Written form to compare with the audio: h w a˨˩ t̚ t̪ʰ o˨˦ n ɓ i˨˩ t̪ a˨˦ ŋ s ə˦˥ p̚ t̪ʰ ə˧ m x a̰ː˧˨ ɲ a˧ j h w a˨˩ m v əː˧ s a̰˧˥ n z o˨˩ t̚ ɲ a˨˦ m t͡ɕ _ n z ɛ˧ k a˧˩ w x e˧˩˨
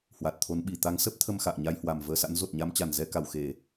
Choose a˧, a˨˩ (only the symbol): a˨˩